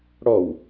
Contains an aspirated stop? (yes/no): no